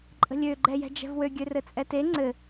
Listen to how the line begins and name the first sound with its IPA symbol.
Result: ǃʼ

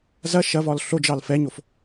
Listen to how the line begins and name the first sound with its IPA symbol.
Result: z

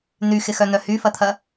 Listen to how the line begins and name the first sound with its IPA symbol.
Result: n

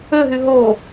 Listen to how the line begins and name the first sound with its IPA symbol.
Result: ø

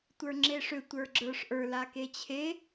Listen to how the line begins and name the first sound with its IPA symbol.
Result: tʷ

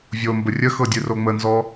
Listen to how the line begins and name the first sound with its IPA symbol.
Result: vʲ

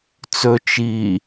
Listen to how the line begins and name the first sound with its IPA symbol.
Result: t͡s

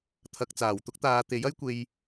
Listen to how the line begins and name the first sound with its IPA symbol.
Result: t̪ʰ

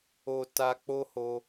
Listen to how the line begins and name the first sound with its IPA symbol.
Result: o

